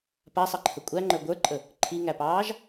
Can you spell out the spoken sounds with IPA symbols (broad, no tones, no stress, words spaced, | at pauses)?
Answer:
pasˤɑǃʰə kʷʼæŋ͡ǃə˞ ɡʷə˞ǃʼə | ǃʰiŋæpɑːʒ